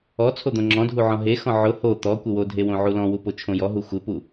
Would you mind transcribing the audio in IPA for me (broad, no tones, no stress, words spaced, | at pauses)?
ɔt͡sʰo d̪õŋ͡ǁɔ̃dʱu ʕɔ̃ɦexɔ̃ ʕʊ ho t̪ɔ kʷɪwodʱe wõʕulɔ̃wu pot͡ʃʰõjɔɦu xʷɪpu